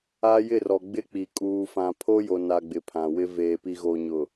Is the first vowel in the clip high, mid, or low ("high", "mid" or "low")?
low